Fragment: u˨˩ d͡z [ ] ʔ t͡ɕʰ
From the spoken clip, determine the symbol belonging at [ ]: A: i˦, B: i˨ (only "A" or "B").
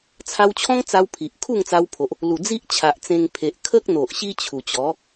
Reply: A